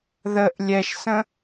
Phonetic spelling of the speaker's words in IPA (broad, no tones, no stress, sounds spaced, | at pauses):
ð ə ʔ lʲ ɛ ʃ s ə̃